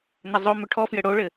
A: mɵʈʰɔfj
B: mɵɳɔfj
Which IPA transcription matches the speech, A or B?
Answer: A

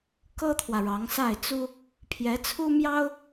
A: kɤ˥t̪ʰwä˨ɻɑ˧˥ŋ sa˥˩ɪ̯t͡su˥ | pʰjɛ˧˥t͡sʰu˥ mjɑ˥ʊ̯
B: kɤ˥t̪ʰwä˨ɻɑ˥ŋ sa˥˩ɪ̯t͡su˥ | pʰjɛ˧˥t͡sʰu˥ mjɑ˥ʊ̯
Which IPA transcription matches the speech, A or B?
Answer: A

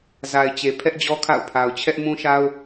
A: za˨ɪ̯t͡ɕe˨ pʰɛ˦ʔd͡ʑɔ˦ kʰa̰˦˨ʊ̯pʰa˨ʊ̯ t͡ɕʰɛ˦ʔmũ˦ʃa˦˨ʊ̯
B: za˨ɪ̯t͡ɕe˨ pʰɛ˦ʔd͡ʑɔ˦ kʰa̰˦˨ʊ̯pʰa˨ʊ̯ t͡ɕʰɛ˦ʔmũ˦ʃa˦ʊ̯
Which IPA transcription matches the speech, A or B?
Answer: B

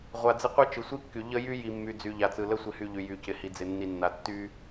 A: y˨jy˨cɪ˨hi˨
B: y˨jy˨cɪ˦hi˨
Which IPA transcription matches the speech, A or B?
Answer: A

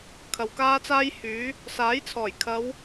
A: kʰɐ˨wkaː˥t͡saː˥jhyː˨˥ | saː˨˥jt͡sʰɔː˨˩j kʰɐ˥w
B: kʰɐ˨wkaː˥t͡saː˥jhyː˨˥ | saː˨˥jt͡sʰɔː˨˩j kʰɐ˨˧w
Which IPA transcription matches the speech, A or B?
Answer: B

